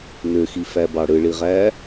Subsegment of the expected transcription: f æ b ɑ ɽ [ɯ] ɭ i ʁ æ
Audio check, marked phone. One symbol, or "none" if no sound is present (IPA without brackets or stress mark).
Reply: ɯ